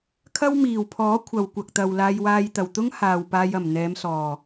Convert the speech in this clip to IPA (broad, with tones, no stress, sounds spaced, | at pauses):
kʰ ɐ˥ w m iː˨˩ w pʰ ɔː˨˥ kʷʰ ɐ˨ w kʷ ɐ˨ k̚ t̪ ɐ˨ w l aː˧ j w aː˧ j t̪ ɐ˨˩ w t̪ ʊ˥ ŋ h aː˨ w p aː˧ j ɐ˨˩ m n̪ ɛː˨˧ m s ɔː˨˩